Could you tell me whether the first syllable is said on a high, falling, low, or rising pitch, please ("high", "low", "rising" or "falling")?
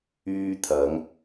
high